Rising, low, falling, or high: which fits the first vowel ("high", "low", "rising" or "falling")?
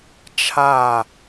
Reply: falling